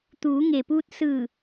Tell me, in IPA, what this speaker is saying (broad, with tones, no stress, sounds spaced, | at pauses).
t̪ uː˩˧ ŋ e˩ p uː˧ t̚ s ɯː˧˩